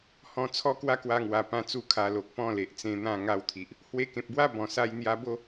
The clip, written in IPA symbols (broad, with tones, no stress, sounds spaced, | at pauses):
h ɔ̃˧ t͡sʰ ɔ˦ k w a˦ k w a˧ ŋ w a˨˩ p ã˧ t͡s u˥˧ kʰ a˧ l o˨ k̚ p ɔ̃˥˧ l e˨ ʔ t͡s ẽ˧ n̪ ã˥˧ ŋ a˧ w t̪ʰ i˨ ʔ | h w e˧ k ẽ˨ p̚ b w a˦ b ɔ̃˨˩ s a˧ j n̪ j a˧ b o˥˧